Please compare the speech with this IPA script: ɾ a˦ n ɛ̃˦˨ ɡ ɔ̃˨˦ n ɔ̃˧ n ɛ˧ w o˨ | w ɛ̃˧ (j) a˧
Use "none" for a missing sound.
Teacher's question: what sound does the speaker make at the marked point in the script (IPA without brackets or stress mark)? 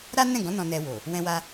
w